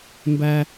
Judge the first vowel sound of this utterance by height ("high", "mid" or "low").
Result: low